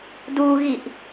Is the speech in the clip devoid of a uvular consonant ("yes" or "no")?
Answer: yes